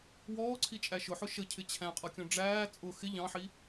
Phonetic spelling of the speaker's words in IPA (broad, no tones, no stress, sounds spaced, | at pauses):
w ɔː ǀʰ i t͡ʃʼ æ ʃ ʊ ħ ʊ ʃ ə cʰ ɪ t͡ɕʰ æ̃ qʼ ʌ kʲ ɔ̃ ɖ͡ʐ æː t͡sʼ ʊ x ɪ ʎ ɑ̃ ħ i